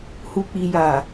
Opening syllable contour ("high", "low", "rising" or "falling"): low